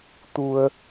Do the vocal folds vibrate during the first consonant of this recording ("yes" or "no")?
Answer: no